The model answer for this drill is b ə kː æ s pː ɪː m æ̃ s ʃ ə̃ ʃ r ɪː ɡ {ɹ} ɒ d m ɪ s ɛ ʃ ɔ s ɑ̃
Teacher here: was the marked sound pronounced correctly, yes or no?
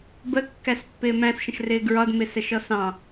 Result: yes